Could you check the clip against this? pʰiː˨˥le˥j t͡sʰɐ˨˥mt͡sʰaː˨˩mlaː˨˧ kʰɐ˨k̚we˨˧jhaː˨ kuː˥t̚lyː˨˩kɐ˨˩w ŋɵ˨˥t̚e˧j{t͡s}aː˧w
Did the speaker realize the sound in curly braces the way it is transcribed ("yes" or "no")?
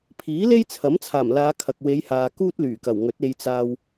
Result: yes